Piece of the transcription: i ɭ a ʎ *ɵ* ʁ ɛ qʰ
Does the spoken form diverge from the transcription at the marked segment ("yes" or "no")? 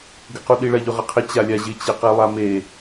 no